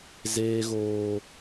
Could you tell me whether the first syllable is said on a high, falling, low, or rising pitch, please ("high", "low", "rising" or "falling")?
high